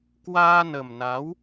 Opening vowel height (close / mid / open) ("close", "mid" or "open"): open